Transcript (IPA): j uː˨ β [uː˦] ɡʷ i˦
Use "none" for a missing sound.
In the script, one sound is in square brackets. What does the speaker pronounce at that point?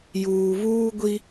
uː˦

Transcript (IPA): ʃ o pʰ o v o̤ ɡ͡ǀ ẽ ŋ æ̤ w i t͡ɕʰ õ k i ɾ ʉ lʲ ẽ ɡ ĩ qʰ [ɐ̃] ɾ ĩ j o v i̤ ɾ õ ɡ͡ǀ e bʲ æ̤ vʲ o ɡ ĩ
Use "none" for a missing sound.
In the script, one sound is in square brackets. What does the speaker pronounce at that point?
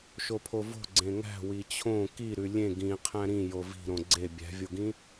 æ̃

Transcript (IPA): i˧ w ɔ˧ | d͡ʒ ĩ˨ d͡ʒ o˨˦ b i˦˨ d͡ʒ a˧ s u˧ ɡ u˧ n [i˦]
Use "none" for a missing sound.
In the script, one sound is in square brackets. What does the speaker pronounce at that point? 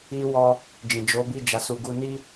i˦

